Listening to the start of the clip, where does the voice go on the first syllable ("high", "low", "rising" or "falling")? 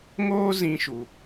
high